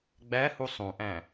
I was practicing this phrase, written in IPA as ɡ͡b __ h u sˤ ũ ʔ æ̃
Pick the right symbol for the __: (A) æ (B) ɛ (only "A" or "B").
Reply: A